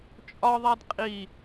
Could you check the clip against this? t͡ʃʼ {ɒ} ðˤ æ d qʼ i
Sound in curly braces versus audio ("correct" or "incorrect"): correct